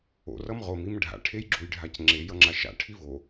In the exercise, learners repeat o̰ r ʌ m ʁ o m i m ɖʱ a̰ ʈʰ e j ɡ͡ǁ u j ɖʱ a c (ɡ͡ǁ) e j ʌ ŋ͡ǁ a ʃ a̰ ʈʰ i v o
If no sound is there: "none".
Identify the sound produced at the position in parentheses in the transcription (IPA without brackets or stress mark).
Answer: ŋ͡ǁ